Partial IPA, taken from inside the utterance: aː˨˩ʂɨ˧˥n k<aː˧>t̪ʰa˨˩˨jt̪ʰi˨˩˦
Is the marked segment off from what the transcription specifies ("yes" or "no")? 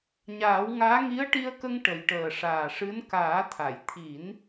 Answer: yes